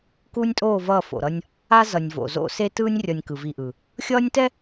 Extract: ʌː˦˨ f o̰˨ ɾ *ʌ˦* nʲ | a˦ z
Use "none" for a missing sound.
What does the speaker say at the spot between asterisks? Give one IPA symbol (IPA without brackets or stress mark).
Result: ʌ˦